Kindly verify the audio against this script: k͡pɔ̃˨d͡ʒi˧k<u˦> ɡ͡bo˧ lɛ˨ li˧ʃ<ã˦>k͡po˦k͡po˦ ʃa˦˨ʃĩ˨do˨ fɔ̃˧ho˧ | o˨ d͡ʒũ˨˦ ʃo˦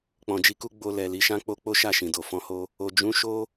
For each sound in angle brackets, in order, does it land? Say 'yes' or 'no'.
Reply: yes, yes

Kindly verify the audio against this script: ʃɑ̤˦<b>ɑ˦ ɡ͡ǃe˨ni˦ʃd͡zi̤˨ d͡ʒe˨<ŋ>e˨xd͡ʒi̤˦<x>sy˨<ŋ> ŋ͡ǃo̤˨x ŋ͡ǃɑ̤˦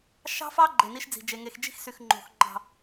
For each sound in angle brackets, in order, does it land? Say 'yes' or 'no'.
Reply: no, yes, yes, no

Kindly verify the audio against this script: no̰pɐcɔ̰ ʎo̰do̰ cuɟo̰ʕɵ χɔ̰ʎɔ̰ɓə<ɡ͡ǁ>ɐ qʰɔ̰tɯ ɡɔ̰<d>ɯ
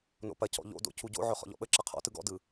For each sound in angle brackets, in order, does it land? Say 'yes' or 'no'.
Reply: no, yes

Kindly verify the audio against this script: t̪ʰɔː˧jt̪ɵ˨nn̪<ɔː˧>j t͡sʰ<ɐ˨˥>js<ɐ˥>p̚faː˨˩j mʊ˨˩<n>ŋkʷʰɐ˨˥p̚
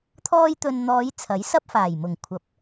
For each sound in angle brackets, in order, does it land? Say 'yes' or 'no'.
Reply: no, yes, yes, no

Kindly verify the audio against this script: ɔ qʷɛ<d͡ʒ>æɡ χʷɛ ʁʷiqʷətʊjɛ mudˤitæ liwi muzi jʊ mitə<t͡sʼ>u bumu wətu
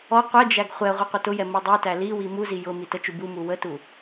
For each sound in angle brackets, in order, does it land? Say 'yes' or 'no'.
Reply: yes, no

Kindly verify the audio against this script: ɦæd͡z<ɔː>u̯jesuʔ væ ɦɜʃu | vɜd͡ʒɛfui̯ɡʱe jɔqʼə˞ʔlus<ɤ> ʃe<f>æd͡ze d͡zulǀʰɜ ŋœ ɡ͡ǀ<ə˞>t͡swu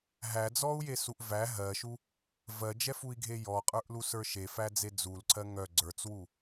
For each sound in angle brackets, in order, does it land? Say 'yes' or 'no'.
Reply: yes, no, yes, yes

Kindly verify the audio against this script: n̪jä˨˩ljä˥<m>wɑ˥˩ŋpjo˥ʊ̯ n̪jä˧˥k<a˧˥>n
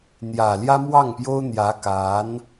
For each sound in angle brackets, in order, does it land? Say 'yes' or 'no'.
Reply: yes, yes

